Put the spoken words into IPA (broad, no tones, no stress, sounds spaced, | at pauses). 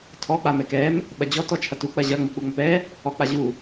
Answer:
tʰ ɔ k͡p a m ɛ k ɛ m | ɓ ɐ d͡ʑ ɔ t ɔ t͡ʃʰ ɐ t u k͡p ɐ ʑ ɐ ŋ͡m u k͡p u ŋ͡m ɐ p ɛ | ɔ k͡p a ʑ u